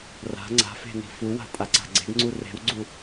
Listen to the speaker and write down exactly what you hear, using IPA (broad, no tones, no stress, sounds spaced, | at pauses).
r a̤ ŋ͡ǀ a̤ f e̤ n i̤ f u w a̤ tʼ a ǀ a̤ ɡ͡ǀ e̤ ɡ ŋ͡ǀ u r e̤ w ɡ͡ǀ u